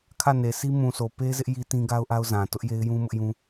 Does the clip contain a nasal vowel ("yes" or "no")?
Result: yes